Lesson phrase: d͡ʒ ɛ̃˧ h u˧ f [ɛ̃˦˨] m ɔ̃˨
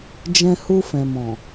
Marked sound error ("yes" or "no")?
yes